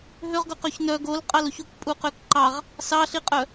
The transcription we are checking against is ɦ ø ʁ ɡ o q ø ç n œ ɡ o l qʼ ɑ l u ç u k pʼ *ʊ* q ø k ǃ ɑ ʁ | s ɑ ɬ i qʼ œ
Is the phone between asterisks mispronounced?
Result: yes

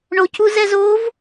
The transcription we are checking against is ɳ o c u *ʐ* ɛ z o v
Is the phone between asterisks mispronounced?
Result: yes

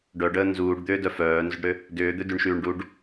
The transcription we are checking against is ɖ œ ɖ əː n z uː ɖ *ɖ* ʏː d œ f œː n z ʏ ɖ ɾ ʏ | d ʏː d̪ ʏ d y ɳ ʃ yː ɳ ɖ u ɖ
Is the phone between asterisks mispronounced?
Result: yes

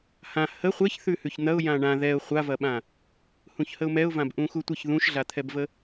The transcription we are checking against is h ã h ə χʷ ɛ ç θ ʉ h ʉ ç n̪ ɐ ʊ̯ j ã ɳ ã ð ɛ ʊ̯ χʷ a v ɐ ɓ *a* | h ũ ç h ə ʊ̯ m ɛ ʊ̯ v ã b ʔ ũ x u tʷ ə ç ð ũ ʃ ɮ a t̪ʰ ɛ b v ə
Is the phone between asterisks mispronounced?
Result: yes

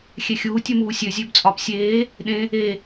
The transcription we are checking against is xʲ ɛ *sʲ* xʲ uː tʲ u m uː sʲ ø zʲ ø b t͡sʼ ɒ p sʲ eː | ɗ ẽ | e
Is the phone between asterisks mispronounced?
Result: yes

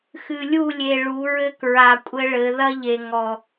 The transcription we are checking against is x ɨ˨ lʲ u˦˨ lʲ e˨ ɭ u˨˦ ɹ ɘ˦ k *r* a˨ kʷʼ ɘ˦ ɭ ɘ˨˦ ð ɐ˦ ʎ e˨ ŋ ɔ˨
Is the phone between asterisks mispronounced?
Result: yes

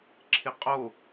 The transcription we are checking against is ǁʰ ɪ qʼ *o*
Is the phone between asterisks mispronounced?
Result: no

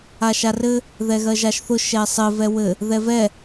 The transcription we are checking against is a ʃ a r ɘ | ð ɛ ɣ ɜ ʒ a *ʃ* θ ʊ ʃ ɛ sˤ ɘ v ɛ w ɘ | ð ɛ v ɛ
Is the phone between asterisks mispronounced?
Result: no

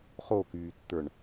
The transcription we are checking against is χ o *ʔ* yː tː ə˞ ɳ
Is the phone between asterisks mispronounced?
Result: yes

